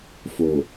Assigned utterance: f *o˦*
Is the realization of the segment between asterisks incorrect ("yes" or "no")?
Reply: yes